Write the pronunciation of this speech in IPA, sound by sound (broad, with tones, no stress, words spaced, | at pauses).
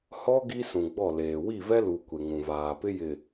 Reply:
hɔ˦ ɡi˦sũ˨ɡ͡bɔ˦˨leː˨ wi˦˨vɛ˦lu˨ kʷe˨ŋũ˨vaː˨ pɪ˦ jɪ˨